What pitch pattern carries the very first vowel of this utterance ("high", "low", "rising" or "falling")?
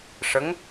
rising